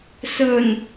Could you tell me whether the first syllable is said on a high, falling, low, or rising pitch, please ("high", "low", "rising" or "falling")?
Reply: low